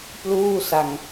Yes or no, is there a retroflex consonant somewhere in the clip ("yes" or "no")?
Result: no